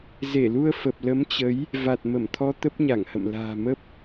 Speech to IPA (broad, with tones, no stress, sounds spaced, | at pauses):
z e˧˩ l u˧ ə̯ f ə˨˩ p̚ l ə˨˦ m t͡ɕ ə˨˦ j | v a˨˩ t̚ m ə˧˩ m t̪ʰ ɔ˧ t̪ ə˦˥ p̚ ɲ a˧˩ ŋ h ə̰˧˨ m l a̤ː˨˩ m ə˦˥ p̚